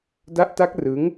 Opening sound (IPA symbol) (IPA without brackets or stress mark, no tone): d